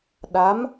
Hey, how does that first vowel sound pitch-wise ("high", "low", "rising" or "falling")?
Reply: rising